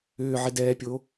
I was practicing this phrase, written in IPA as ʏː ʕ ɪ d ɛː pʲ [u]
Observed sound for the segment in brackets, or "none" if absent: o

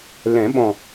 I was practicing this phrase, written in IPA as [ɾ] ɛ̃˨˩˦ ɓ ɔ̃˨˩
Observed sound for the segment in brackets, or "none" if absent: l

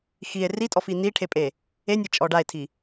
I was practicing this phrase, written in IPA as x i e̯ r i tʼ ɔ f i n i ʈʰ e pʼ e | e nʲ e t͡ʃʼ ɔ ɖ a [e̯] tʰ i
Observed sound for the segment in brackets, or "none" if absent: e̯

